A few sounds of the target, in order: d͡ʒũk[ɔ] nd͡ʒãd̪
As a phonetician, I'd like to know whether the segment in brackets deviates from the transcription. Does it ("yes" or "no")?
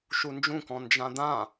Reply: yes